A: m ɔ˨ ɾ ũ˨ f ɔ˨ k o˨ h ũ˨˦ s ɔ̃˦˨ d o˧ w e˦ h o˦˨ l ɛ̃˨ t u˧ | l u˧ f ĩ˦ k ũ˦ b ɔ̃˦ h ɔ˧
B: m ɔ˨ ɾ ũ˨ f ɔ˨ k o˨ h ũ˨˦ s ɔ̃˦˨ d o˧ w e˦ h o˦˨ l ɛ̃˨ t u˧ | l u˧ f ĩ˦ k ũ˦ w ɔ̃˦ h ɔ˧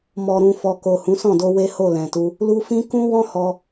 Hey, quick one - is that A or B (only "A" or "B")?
B